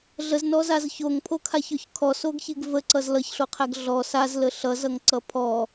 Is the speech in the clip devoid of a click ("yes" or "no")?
no